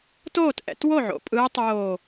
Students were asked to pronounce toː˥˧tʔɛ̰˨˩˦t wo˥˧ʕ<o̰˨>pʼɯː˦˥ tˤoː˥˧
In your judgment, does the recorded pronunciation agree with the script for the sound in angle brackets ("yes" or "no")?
yes